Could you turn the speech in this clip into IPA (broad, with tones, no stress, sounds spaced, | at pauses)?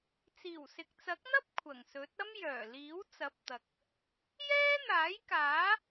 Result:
t͡s iː˨˩ w s ɪ˨ k̚ t͡s ɐ˨˥ k̚ n̪ ɐ˥ p̚ kʷʰ ɐ˨˩ ŋ s ɵ˨˥ t̚ ɐ˥ m j œː˨˩ l iː˨˥ w t͡s ɐ˨˥ p̚ t̪ ɐ˨ k̚ | j ɛː˥ n̪ aː˨˥ j k aː˨˥